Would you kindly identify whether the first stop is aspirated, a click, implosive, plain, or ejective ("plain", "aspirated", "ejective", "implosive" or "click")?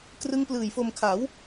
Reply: plain